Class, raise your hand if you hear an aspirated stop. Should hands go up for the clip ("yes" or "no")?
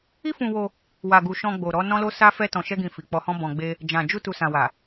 no